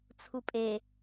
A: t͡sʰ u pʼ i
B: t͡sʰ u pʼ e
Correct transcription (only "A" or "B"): B